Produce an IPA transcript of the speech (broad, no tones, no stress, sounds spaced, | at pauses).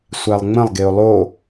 sʷ æ lˠ ŋ͡m ə̃ lˠ ɡ e ʊ̯ lˠ o